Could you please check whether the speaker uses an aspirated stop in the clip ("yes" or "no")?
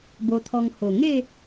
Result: yes